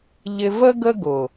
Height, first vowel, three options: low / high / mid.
high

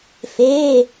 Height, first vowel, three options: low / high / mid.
mid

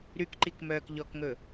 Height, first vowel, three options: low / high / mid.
high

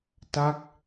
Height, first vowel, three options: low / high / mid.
low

